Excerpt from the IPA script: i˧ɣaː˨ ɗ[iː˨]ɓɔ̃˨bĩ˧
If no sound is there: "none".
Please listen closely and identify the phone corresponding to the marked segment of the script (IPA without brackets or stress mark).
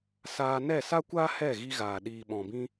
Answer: iː˨